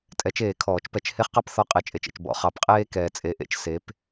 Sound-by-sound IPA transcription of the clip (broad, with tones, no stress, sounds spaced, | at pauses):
tʼ ɛ˨˩˦ t͡ʃ eː˨˩˦ kʰ ɔː˨˩˦ t͡ʃ p ɛ˨˩˦ t͡ʃ h e˦ χ q ɑ˥˨ p θ ɔ˦ qʼ e˨˦ t͡ʃʼ e˨ t͡ʃ ḛ˨ t͡ʃ b ɔ̰˨ χ ɑ˨˦ p qʼ eː˦ k ɛː˨ t͡sʼ e˨˦ ʔ ḛ˨˩˦ t͡ʃ s e˨˦ p